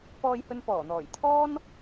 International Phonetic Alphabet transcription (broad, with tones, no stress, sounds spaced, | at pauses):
p ɔː˧ j h ɵ˧ n p ɔː˨˩ n̪ ɔː˨˩ j t̪ʰ ɔː˥ n